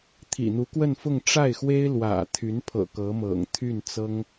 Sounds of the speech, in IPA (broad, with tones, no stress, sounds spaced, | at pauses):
t̪ʰ ḭ˨˩ n̪ u˧˥ k w ə˥˧ n f ʊ˥˧ ŋ ʈ͡ʂ a˥˩ ɪ̯ x w e˥ ɪ̯ l w ä̰˨˩ t̪ʰ y˧˥ n pʰ ɤ̰˨˩ k ɤ˧˥ m ɤ̰˨˩ ŋ t̪ʰ y˥˩ n t͡s ɤ˥ ŋ